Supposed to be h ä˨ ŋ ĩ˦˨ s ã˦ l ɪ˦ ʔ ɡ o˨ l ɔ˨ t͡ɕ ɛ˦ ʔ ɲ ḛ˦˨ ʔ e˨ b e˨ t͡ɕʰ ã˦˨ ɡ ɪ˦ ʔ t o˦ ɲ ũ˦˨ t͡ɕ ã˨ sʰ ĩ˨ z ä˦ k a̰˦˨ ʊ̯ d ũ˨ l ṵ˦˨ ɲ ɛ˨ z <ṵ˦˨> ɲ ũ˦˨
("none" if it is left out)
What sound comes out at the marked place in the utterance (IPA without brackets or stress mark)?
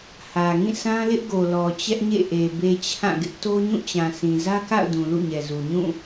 u˨